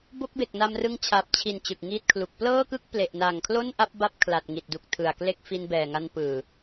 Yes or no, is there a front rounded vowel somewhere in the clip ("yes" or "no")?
no